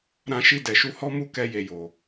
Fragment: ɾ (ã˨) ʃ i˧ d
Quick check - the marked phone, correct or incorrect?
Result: incorrect